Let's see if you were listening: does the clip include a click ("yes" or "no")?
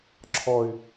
yes